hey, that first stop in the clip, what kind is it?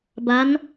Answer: plain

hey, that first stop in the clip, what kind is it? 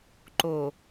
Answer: click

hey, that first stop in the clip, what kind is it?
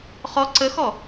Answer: click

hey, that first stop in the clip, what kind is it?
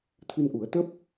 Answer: aspirated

